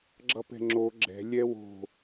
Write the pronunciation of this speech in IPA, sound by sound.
ɡ͡ǁ ʌ p ɛ̤ ŋ͡ǁ o ɡ͡ǁ ɛ̤ lʲ ɛ w o̤

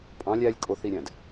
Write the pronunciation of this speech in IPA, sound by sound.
pʼ ɑ̃ lʲ æ lʲ kʼ o θ i ɾʲ æ̃ d

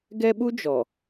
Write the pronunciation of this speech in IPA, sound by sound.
ɡ ɛ˦ ɓ u˦ d͡ʒ ɔ˨

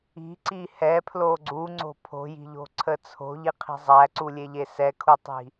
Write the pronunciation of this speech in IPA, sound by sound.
i̤ ǀ i h ɛ pʰ l o ɡ͡ǀ u ŋ͡ǀ o̤ pʰ o̤ j i̤ ʎ o̤ ǀʰ ə t͡sʰ o̤ ʎ i qʰ i̤ zˤ æ ǀ u lʲ e ʎ e s ɛ kʰ u tˤ i̤

